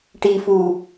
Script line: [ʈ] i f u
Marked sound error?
no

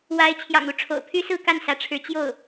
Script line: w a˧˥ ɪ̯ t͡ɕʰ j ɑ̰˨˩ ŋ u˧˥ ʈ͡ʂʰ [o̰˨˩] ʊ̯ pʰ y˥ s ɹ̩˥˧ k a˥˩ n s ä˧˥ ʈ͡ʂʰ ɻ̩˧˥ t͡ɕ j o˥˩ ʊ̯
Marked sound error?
no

